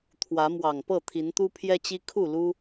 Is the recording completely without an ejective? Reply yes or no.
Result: yes